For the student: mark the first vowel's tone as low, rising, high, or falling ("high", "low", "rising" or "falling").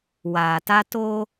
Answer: low